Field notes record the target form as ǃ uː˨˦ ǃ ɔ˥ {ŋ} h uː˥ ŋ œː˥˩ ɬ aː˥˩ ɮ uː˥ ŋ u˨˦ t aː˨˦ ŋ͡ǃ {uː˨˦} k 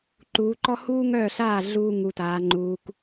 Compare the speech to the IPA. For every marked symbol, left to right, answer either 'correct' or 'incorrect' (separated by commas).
incorrect, correct